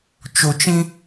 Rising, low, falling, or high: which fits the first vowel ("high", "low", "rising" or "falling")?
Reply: low